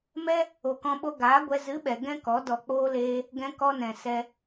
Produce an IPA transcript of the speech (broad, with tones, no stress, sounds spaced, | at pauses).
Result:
m ɛ˦ | o˨ k ɔ̃˧ ɓ o˧ ɡ aː˨˦ ɡʷ ɛ˧ z ɨ˨˦ ɓ ɛ˨ ɡ ɛ̃˦ k ɔ˨˦ d ɔ˨ k͡p oː˧ l eː˧ | ɡ ɛ̃˧ k ɔ˧ n ɛ̃˨ s ɛ˦